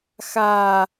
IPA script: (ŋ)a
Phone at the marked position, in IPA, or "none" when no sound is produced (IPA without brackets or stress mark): x